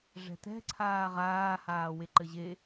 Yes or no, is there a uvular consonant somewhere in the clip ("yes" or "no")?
yes